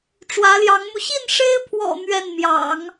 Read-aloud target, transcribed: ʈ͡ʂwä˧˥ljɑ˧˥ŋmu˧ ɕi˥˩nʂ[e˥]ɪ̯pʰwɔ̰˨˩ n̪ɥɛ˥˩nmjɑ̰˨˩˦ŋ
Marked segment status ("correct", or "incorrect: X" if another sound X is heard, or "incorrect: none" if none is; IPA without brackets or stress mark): correct